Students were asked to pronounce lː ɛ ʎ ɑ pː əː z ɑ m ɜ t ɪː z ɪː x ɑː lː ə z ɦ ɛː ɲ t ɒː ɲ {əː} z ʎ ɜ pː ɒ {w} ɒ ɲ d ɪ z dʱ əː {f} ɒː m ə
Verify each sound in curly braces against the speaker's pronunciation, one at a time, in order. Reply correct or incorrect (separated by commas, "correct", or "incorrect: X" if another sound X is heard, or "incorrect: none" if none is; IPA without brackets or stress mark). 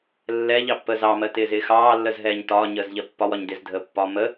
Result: correct, correct, incorrect: pː